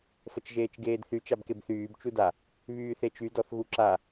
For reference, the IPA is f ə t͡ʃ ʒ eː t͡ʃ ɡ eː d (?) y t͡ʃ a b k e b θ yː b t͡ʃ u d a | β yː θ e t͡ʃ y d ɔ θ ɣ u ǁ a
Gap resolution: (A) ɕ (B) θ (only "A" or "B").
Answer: B